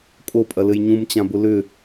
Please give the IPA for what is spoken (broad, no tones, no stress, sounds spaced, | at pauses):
kʼ o pʼ ɐ l ɘ j ɲ ũ m t͡ɕ ã b ʊ l ʏ